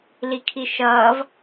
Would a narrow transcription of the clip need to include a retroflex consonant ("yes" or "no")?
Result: no